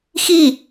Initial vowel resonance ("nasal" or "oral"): oral